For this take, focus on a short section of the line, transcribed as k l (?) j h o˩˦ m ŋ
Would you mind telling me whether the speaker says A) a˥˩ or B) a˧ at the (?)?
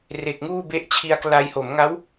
B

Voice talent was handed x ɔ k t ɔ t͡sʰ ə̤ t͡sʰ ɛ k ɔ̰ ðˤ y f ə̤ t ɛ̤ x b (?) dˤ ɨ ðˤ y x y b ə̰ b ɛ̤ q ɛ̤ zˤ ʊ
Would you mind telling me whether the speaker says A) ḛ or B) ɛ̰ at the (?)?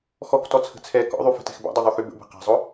B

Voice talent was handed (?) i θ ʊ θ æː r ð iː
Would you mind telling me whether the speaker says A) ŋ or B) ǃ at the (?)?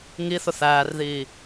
A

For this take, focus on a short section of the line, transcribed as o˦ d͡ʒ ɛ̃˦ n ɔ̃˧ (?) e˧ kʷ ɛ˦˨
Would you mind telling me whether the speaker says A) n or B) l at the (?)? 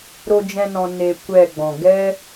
A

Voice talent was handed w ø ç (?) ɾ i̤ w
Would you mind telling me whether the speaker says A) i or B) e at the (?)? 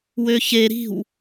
B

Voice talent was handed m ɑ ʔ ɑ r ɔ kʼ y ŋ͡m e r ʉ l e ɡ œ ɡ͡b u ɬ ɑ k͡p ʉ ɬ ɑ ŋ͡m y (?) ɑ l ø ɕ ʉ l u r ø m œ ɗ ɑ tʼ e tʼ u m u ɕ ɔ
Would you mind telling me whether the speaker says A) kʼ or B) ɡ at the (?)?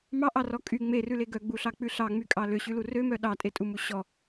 A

